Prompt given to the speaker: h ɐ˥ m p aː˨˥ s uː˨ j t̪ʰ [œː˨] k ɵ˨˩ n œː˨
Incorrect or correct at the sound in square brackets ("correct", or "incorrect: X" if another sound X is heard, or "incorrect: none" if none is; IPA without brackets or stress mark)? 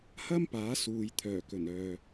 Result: incorrect: œː˨˩